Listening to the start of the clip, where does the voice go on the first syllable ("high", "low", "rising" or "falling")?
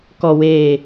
low